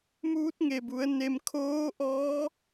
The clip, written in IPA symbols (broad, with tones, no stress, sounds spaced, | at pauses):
m uː˧˥ t̚ ŋ e˩ b u˩˧ ə̯ n e˧ m kʰ oː˧˥ ʔ ɔː˧˥